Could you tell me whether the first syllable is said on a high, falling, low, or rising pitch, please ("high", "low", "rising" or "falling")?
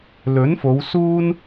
rising